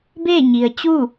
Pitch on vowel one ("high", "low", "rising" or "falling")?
falling